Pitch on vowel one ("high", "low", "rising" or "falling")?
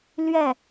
falling